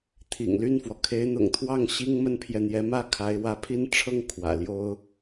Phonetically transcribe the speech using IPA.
t̪ʰḭ˨˩ŋly˥˩nfwɔ˩ kʰe˧˥ɪ̯n̪ʊ̰˨˩ŋt̪ʰwɑ˥˩ŋ ɕi˥ŋ mə˥npʰjɛ˨ n̪jɛ˧˥mä˥˩ kʰa˧˥ɪ̯ wä˧˥pʰi˥n ʈ͡ʂʰɤ˥˩ŋ kʰwä̰˨˩ljo˥ʊ̯

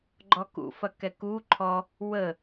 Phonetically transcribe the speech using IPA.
ɡ͡ǃɔkṵ fɐkɛku ǃʰɔ | wə

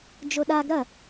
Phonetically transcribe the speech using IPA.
d͡ʒoɗaɡ ɾɐ

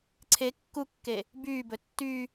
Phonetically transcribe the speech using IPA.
ǀʰe kːukːe | byːbɵ tːy

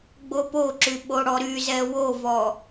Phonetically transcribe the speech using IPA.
ɡ͡bopoǁy ɓoɽɔɾyzɛ wovɔ

